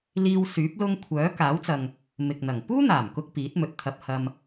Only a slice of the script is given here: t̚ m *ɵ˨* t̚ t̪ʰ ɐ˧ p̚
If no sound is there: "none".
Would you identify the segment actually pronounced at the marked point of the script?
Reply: ɵ˨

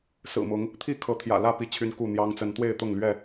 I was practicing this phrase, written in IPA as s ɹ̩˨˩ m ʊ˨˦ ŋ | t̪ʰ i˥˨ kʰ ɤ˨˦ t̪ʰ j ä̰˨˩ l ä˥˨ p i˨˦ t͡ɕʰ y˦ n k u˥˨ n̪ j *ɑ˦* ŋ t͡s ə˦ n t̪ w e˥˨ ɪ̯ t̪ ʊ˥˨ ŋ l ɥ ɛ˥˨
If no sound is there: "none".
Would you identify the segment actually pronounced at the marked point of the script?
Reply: ɑ˦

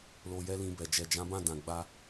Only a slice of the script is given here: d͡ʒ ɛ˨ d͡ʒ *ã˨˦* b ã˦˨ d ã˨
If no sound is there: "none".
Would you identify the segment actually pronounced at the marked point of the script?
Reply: ã˨˦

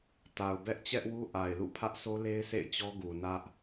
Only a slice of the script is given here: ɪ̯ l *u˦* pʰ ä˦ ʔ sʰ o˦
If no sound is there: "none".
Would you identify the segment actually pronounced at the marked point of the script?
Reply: ṵ˦˨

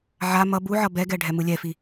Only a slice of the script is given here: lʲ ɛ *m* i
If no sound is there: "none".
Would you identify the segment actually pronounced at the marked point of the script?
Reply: f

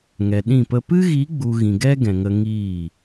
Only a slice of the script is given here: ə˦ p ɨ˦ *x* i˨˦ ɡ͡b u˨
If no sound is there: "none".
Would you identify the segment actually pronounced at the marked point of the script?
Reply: ɣ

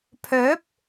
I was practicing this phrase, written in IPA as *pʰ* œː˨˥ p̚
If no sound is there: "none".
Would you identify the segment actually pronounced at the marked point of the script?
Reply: pʰ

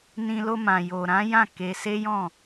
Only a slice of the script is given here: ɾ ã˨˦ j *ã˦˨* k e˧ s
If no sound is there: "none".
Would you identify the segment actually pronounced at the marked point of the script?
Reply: ã˦˨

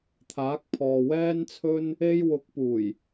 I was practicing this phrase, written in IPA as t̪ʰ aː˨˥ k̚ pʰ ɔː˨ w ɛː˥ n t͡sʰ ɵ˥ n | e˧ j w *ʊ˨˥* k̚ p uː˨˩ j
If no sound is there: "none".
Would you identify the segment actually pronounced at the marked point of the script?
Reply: ʊ˨˥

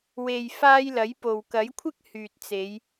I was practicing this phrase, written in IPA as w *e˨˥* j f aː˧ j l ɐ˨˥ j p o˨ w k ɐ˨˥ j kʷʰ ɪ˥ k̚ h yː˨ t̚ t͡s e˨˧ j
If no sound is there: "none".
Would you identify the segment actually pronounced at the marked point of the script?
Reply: e˨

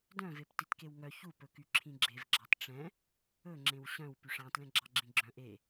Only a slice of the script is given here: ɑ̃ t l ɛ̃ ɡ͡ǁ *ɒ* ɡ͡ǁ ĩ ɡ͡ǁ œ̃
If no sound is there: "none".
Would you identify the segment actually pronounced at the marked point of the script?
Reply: ɑ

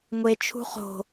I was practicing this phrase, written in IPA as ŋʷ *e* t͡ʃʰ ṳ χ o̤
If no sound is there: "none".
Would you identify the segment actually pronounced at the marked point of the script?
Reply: e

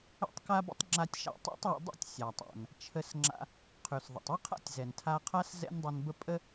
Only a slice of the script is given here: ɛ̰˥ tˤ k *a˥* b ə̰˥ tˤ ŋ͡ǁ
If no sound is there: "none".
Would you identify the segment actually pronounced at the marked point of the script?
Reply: a˥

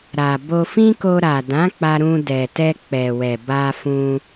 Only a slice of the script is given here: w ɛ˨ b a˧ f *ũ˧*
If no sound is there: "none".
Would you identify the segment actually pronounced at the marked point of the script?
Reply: ũ˧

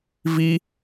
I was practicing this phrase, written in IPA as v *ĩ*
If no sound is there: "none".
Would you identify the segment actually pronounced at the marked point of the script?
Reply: i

